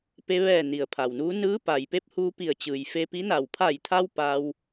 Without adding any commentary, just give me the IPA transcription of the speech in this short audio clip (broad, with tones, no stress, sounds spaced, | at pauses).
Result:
p e˧ ʋ ɛː˧˩ n i˩ ə̯ pʰ a˩ w n uː˧˥ n ɯː˧˥ p a˩ j p e˧˥ p̚ h uː˧ p i˧˩ ə̯ t͡ɕ ɯː˩ j f e˧ p i˧˥ n a˧˩ w pʰ a˧˩ j t̪ʰ a˧ w p a˧ w